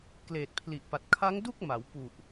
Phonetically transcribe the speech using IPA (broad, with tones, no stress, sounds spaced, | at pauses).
k l eː˨˩ t̚ pʰ l i˨˩ ʔ p a˨˩ t̚ kʰ a˦˥ ŋ d u˥˩ k̚ m a˩˦ w p u˨˩ ʔ